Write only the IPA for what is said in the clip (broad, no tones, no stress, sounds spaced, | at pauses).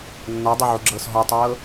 nː ɔ dˤ ɤ ʕ u ɡ͡ǁ ɤː s ɦ ɔ tˤ ɤː